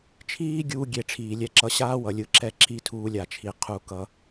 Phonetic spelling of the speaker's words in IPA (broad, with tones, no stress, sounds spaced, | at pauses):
t͡ʃʰ iː˦ ɡʲ uː˧ ɡʲ e˨ ʈ͡ʂʰ iː˨ lʲ ɛ˧ ǁ ʌ˧ ɕ aː˦ w ʌ˨ lʲ ɯ˧ ǁ ɛ˦˨ ǁ i˧ tʰ uː˧ lʲ a˨ t͡ʃʰ i˨ qʰ u˧ k ʌ˧